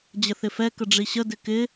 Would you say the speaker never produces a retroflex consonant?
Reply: no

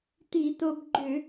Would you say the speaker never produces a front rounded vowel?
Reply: no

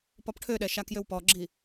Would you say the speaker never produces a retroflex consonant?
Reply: no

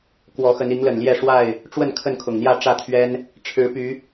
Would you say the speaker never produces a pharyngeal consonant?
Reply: yes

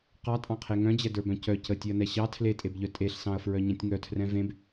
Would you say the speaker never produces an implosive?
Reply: yes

